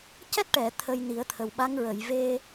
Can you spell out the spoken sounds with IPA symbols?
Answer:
c ɛ˦˥ t̚ ʈ ɛ˨˩˨ t̪ʰ ə˧ j n i˨˩˦ ə̯ t̪ʰ ə˨˩ w ɓ a˧˥ ŋ ɹ ə˨˩˨ j v e˧

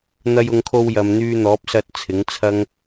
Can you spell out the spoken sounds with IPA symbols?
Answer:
n̪ ɐ˧ j ʊ˨˧ ŋ kʰ o˧ w j ɐ˨ m n̪ yː˧ n̪ ɔː˨˥ p̚ s ɐ˧ t̚ t͡sʰ ɪ˨˥ ŋ t͡sʰ ɐ˥ ŋ

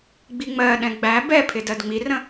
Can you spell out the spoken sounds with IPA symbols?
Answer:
ɡ͡b i ŋ͡m ɜ ɗ ɛ̃ ɡ͡b æ b ɛ pʰ ɪ d ɜ d ŋ͡m i r ə̃

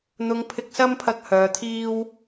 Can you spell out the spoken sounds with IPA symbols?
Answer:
n̪ ʊ˨˧ ŋ pʰ ɪ˧ k̚ s ɐ˥ m pʰ ɐ˧ k̚ h œː˨ t̪ʰ iː˥ w

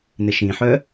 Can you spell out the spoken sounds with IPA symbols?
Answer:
n ɪ ʃ ĩ ħ œ

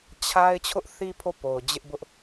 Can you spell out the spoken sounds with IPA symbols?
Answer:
t͡ɕʰ a˦ ɪ̯ t͡ɕʰ ʊ˦ ʔ θ i˦ pʰ o˦˨ p o˨ ʊ̯ d͡ʑ ɪ˦ ʔ b ʊ˦ ʔ

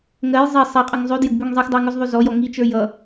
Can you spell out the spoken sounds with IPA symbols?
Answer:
ŋ ɜ j zˤ i sˤ i qʼ ʌ ŋ zˤ ʉ d j ə ɡ b ʉ ŋ zˤ i x dˤ ə˞ ŋ ʉ z ðˤ ʉ z ɔ j ɔ ŋ i t͡ʃ ə˞ j ʌ

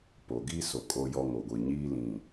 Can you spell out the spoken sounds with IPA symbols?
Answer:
p o˨ ɡ iː˦ s o˨ kʼ o˦ j ɔ˦ ŋ o˨ ɡʷ i˨ ɲ iː˦ l ĩ˨

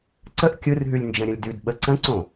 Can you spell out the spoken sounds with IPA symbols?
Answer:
ǀ ə ʔ kʲ ɯ r ɦ ʉ lʲ n d͡ʒ ə̃ ɾʲ ə̃ lʲ d ʉ d ɓ ə ǀ ə̃ ǀ õ

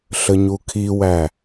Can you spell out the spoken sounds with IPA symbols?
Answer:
ɬ ə ɲ u kʰ i w æ

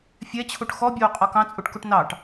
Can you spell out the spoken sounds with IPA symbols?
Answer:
fʲ ɛ t͡ɕʰ u ʈ x ɔ bʲ oː qʼ ɔ k ɑ̃ t͡sʼ u ʈ k u ʈ n ɑ ʈ

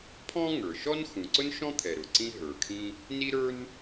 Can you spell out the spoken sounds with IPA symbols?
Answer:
pʰ ɔ̃˥ ŋ ə˞˩ ʃ ɔ˥ n x ũ˩ ǀ ʊ˥ n ʃ ɔ̃˥ t̪ʰ ɛ˩ ɾ ʊ˩ ǀ ĩ˥ ɦ ə˞˩ kʰ ĩ˥ | n i˥ ɾ ə˞˥ n

